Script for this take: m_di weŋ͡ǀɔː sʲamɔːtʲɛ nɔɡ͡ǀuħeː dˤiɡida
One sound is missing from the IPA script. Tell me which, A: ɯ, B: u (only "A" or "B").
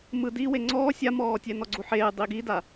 A